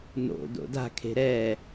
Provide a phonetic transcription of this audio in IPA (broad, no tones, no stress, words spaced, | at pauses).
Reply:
no̰ do̰da̤kʰe̤ ɾɛ